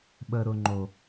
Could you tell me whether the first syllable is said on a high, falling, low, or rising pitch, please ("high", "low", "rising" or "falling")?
low